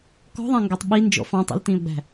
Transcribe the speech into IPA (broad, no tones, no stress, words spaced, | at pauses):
kɔ̤ðˤæ̃ŋɡætˤ ɓi nd͡ʒɔ̰ fɑ̃ tˤḭltĩːʊ̯ɡ͡bæ̤